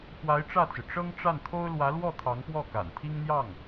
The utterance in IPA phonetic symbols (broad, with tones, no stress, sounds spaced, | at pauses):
x w a˧˥ ɪ̯ ʈ͡ʂ ä˥˩ t͡s ɹ̩˩ ʈ͡ʂ ɤ˥ ŋ ʈ͡ʂ a˥˩ n t̪ʰ o˥ ʊ̯ l w ä˧˥ l w ɔ˥˩ t̪ʰ ɑ˧˥ ŋ p w ɔ˥˩ k a̰˨˩ n t̪ʰ i˥ ŋ n̪ j ɑ˥˩ ŋ